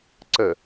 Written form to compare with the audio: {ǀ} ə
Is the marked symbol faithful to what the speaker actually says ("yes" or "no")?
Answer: yes